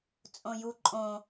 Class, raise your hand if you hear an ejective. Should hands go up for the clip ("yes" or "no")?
yes